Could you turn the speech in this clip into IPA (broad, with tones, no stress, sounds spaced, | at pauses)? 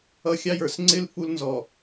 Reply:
ʌ˦ xʲ ɑ˦ j ə˞˨ s ŋ͡ǀ ɪ˦ l f u˦ l n z ɔ˨